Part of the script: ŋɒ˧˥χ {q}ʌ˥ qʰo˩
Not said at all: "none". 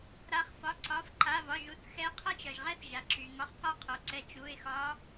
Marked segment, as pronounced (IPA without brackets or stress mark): q